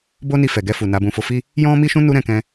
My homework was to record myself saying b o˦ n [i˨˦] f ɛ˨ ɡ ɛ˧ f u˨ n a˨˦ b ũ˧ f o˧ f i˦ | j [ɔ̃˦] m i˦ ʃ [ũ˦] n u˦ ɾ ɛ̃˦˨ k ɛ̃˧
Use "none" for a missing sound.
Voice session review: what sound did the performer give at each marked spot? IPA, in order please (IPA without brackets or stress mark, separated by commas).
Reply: i˧, ɔ̃˦, ũ˦